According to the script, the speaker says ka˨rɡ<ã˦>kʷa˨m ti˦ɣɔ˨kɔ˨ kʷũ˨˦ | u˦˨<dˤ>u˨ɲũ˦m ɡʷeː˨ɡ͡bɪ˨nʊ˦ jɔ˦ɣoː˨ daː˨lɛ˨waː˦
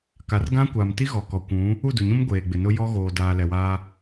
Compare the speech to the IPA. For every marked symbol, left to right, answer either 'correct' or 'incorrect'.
correct, incorrect: d

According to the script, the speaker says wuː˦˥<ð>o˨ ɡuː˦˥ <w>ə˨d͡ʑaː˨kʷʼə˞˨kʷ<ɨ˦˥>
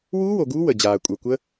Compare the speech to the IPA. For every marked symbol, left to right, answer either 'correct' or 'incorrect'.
incorrect: w, correct, incorrect: ə˦˥

